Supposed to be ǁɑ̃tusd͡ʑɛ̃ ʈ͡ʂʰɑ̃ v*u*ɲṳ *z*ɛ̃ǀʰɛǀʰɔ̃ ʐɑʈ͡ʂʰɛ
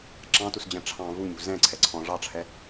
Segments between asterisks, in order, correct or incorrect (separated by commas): correct, correct